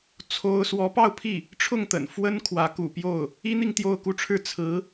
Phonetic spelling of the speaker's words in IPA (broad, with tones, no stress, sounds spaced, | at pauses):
t͡sʰ o˥ ʊ̯ s w ɔ˧˥ p ɑ˥˧ ʊ̯ pʰ i˥˩ | ʈ͡ʂʰ ʊ˥˩ ŋ t̪ ə̰˨˩ n f w ə˥ n kʰ w ä˧˥ k ṵ˨˩ p j o˥˩ ʊ̯ | i˥ n̪ i˥˧ ŋ t̪ j o˥˧ ʊ̯ k u˥˧ ʈ͡ʂʰ ɻ̩˥˩ t͡sʰ ɹ̩˧˥